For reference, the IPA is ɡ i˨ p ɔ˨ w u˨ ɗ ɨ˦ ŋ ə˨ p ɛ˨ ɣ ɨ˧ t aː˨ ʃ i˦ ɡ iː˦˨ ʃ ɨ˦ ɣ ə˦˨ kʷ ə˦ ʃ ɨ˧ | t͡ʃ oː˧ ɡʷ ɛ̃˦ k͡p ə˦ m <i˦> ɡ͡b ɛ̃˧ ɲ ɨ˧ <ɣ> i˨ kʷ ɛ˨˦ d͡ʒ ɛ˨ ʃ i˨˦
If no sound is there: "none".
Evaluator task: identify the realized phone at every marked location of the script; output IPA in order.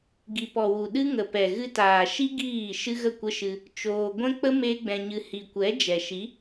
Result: e˦, h

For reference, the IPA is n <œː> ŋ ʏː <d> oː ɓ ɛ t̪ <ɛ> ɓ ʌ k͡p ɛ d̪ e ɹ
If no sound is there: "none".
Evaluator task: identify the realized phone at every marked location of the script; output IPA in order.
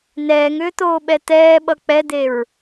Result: ɛː, t̪, ɛː

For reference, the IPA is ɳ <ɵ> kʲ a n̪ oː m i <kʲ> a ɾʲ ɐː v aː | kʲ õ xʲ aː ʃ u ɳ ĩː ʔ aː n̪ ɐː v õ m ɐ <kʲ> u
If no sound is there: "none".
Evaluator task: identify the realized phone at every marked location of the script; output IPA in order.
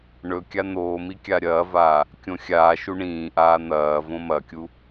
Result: ɵ, kʲ, kʲ

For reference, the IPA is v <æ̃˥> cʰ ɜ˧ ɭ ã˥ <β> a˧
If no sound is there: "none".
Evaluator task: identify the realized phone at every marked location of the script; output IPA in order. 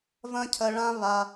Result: ɐ̃˥, β

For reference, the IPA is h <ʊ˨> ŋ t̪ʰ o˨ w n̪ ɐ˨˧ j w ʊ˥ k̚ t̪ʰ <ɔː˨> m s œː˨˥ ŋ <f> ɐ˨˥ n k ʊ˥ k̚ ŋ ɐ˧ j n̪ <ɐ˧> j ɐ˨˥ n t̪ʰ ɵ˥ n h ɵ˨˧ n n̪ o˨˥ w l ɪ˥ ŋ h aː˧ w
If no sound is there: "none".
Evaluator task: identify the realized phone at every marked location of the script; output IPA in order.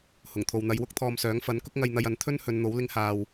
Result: ʊ˨˩, ɔː˧, f, ɐ˧

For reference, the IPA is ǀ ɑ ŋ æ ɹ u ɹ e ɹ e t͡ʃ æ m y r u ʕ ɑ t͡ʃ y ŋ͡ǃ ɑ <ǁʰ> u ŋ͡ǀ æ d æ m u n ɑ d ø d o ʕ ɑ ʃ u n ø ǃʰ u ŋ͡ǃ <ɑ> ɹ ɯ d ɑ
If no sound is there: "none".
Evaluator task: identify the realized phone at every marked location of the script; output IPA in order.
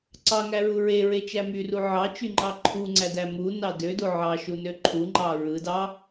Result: ǃʰ, ɑ

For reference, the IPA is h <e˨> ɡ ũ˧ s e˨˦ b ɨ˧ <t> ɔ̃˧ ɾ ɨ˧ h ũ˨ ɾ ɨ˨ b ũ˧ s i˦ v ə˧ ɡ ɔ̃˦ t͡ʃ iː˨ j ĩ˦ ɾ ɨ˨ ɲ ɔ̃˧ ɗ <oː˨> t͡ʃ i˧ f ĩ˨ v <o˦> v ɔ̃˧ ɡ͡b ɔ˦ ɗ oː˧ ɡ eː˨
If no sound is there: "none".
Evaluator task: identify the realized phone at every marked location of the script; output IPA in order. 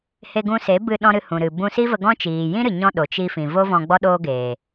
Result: e˧, ɗ, o˨, o˦

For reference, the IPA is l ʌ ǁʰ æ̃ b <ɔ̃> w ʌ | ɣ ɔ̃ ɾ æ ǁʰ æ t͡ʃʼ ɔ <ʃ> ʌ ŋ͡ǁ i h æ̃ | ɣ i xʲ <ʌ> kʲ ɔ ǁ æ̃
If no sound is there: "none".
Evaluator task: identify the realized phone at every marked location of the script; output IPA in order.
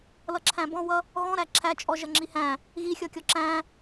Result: ɔ̃, ʒ, ʌ

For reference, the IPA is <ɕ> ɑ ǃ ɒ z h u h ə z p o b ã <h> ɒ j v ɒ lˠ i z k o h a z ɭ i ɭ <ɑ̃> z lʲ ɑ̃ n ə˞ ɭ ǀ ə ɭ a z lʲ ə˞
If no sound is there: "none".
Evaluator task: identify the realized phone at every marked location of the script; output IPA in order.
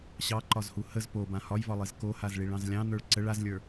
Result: ɕ, h, ɑ̃

